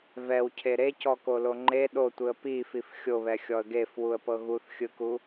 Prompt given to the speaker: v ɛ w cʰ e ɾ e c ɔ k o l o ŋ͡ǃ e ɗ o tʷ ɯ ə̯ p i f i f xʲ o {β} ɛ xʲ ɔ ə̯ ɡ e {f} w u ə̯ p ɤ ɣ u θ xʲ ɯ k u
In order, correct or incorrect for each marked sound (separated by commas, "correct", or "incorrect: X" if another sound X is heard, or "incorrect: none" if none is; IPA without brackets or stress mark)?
correct, correct